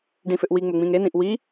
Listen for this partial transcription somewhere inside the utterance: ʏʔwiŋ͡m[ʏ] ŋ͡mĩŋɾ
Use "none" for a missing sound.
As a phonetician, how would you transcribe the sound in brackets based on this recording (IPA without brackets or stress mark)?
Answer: ʏ